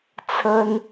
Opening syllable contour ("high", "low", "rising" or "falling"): high